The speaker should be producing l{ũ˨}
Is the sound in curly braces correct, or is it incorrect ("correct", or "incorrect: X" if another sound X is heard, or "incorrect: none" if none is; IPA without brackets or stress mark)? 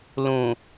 correct